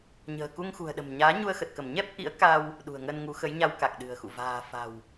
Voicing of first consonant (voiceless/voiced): voiced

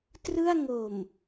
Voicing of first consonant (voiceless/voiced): voiceless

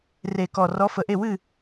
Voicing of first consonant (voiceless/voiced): voiced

